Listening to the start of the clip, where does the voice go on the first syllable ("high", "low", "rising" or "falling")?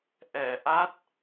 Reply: low